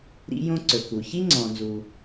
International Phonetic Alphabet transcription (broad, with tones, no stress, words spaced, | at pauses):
ɾḭ˥jõ˥ǀɵ˩ku˩ çi˥ŋ͡ǀɔ̃˩nzu˩